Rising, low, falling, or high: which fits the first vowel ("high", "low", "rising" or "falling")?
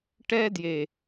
high